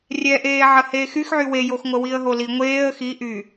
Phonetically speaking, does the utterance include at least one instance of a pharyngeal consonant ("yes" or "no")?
yes